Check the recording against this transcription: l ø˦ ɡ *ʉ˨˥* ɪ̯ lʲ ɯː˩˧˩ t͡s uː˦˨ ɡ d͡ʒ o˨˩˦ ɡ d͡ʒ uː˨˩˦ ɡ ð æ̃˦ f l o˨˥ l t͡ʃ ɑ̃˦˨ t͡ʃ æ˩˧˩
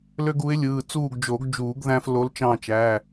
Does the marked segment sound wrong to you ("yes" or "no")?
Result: yes